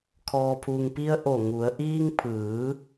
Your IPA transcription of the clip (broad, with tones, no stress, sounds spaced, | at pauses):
kʰ ɔː˩ pʰ u˩ ŋ p i˧ ə̯ ʔ o˧˩ ŋ u˩˧ ə̯ ʔ iː˧ ŋ pʰ ɯː˩˧